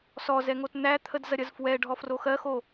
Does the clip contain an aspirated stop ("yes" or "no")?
yes